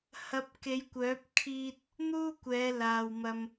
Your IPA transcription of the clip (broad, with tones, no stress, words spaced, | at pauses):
hɐ˨˥p̚ ke˨˧jkʷœː˨˥p̚ kʰiː˧t̚ | n̪uː˥kʷɛː˨˧ laː˨wmɐ˧m